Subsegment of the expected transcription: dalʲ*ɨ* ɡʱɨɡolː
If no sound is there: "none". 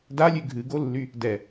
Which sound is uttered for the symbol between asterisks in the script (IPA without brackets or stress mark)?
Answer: ʉ